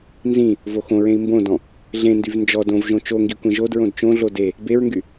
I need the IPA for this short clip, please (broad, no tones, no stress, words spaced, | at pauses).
nzĩ | voxõɹẽi̯ mbõdɔ̃ | ɮẽndyv nd͡ʒɔ dõvʒõ t͡ʃoŋɡi kʷẽʒodɹõd t͡ʃõɮo de | beɹŋɡy